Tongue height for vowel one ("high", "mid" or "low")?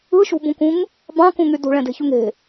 high